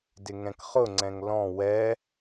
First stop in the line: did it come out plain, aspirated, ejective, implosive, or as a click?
plain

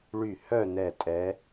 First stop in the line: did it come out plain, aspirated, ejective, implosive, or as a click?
ejective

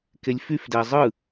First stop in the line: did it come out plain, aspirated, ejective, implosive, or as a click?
plain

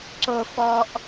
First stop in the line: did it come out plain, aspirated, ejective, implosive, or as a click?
click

